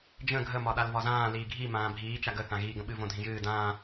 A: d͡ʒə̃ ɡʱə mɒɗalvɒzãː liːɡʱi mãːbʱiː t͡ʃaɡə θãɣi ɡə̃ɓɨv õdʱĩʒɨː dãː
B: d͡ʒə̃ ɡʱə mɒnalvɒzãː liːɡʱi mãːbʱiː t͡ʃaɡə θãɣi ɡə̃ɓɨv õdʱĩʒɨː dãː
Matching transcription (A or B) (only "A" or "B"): A